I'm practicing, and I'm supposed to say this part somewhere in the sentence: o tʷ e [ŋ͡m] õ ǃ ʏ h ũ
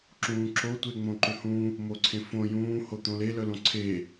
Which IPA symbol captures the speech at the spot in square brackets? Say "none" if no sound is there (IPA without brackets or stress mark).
ŋ͡m